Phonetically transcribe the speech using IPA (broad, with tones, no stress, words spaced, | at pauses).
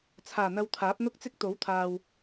t͡sʰaː˨˩n̪ɐ˧wt̪ʰaː˨˥p̚ n̪ʊ˥k̚t͡sɪ˥k̚t̪o˨˥wt̪ʰaː˨w